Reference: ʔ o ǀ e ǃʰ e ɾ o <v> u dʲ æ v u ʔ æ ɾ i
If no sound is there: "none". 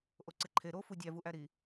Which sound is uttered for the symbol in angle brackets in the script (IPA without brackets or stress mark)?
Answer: f